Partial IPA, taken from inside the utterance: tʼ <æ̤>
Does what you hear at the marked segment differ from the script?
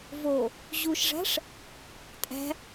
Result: no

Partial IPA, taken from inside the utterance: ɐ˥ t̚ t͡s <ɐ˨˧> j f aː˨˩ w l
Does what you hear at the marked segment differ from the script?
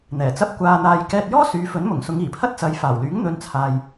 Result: no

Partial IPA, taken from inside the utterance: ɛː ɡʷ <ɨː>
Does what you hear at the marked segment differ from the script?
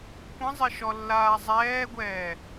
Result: yes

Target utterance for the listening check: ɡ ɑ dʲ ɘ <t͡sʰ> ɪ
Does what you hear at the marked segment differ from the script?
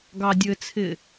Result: no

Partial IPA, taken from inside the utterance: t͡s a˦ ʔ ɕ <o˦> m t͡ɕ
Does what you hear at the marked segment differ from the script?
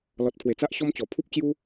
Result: yes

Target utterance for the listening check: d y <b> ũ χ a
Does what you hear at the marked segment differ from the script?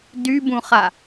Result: no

